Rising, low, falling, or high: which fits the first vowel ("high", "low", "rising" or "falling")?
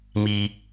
low